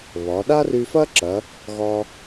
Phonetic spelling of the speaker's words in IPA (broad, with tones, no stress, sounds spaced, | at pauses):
β ɒ˩˧ ɗ a˥ r y˧ f ɐ˥ ǁ ɐ˩˧ | ɣ ɒ˧